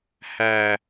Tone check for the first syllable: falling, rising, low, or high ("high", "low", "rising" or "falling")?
low